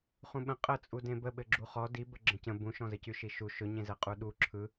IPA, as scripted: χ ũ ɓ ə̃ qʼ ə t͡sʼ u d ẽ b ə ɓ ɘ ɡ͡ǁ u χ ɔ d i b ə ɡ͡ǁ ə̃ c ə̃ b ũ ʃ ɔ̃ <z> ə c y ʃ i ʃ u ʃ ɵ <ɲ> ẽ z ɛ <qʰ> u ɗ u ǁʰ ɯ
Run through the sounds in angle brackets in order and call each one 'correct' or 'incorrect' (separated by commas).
correct, correct, incorrect